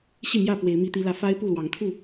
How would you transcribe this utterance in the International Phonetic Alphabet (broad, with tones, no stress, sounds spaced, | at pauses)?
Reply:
ɕ i˥˨ m j ä˥˨ p w e˨˦ ɪ̯ m i˦ t̪ i˦ l ä˦ f a˦ ɪ̯ p u˥˨ l w ɑ˨˦ ŋ t̪ʰ u˥˨